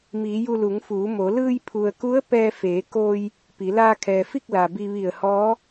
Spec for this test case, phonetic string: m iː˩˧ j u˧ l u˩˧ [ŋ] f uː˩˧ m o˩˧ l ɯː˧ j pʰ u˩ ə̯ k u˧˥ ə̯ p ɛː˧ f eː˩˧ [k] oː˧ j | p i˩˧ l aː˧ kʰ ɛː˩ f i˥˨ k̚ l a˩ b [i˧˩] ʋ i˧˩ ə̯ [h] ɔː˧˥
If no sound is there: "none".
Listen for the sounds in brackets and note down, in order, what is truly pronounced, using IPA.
ŋ, k, i˧, h

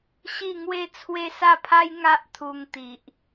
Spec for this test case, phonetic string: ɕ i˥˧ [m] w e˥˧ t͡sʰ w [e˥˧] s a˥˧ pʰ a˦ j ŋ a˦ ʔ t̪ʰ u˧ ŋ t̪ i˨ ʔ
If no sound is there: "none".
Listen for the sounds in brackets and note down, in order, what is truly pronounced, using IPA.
ŋ, e˦

